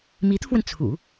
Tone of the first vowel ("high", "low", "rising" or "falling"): rising